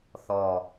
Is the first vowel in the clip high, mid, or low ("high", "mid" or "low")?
mid